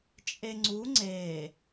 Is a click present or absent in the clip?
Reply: present